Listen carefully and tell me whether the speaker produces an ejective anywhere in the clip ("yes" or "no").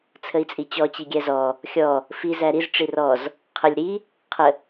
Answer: yes